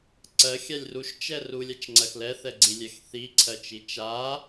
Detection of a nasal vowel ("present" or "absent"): absent